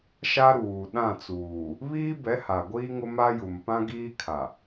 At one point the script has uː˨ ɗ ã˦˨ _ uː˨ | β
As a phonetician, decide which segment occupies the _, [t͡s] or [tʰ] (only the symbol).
t͡s